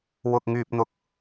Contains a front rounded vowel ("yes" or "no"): yes